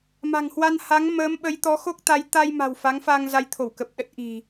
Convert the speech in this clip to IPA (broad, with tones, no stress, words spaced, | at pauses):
ma̤˨˩ŋhwa˧nha˨˦ŋ məː˨˦mɓə˨˦jt̪ɔ˨˦ xo˦˥k̚ t̪a˨˦j t̪a˧jma̤˨˩w fa˨˦ŋfa˧ŋ za˧jt̪ʰo˧˩wkə˨˩p̚ ɗə˦˥t̚ʔi̤˨˩